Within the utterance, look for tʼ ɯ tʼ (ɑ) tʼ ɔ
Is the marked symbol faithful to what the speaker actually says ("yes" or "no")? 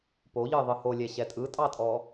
yes